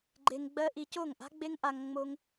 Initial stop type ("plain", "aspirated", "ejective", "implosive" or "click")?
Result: click